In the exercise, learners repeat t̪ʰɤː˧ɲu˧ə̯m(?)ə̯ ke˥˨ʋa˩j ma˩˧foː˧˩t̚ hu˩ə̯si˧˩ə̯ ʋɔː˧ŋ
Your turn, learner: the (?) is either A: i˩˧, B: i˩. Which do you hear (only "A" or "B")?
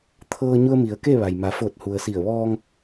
A